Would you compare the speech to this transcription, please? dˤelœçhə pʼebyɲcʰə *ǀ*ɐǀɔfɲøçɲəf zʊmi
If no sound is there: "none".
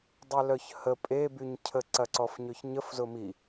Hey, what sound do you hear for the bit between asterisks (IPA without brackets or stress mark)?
ǀ